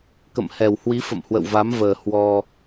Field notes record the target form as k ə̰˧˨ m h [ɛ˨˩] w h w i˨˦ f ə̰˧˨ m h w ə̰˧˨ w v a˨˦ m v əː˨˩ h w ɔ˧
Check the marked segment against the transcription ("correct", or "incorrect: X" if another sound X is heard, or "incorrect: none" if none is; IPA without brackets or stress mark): correct